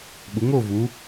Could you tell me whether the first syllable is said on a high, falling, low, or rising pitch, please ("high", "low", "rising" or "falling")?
rising